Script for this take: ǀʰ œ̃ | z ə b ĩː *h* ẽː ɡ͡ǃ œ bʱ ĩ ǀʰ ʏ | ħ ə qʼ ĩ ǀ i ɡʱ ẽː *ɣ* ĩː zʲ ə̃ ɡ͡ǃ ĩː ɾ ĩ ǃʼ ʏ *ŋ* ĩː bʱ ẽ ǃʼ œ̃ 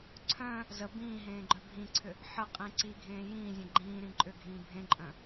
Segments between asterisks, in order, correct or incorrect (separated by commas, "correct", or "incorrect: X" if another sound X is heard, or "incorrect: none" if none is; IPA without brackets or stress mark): incorrect: ɦ, incorrect: j, incorrect: ɡʱ